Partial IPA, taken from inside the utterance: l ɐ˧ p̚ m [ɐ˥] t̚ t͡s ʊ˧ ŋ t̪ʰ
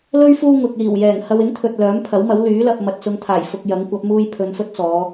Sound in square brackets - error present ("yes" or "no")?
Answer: yes